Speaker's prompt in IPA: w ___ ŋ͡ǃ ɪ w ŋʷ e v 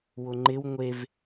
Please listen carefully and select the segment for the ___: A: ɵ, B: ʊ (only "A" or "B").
B